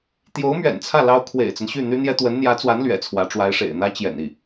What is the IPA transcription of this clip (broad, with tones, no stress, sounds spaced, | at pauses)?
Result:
t̪ j o˧˥ ʊ̯ m ɥ ɛ̰˨˩ n t͡sʰ ä˥˩ l ɑ˥ ʊ̯ kʰ w ḛ˨˩ ɪ̯ t͡s ə˦ n ɕ y˥˩ n̪ y˥ n̪ j ɛ˥ t̪ w ə˧˥ n n̪ j ä˧˥ t͡s w a˧˥ n l ɥ ɛ̰˨˩ t͡sʰ w ä˧˥ ʈ͡ʂ w a˧˥ ɪ̯ ʂ ḛ˨˩ ɪ̯ n̪ ä˥ t͡ɕ j ɛ̰˨˩ n i˥˩